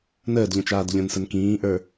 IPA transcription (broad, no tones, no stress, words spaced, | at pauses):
nəːdʎə̃t͡ʃaːd ʎə̃nsən kĩːʔə˞